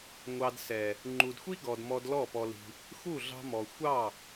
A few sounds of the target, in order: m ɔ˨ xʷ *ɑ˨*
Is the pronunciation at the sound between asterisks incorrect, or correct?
incorrect: ɑ˦˨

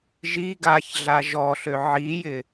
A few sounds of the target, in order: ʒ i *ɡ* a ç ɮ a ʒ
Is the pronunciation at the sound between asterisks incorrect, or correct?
correct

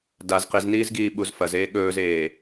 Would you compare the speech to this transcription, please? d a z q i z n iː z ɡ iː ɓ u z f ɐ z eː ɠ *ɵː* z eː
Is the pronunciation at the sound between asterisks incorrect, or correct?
correct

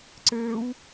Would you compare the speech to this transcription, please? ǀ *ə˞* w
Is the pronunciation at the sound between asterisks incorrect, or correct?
correct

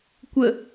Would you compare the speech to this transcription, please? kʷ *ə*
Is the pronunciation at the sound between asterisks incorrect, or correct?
correct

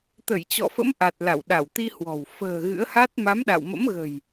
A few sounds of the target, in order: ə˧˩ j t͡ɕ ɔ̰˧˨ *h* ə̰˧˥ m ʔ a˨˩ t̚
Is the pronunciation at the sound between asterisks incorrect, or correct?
incorrect: f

